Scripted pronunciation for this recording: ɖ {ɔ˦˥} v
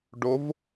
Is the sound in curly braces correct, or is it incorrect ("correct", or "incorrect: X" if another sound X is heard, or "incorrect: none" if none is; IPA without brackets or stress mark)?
incorrect: o˦˥